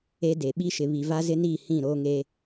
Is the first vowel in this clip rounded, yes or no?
no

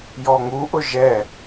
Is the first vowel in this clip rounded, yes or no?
yes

